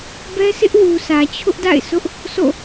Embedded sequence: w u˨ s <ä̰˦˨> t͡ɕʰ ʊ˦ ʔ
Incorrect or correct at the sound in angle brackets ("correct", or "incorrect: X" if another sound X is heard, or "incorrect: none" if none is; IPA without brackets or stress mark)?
incorrect: ä˨